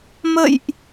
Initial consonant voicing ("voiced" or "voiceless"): voiced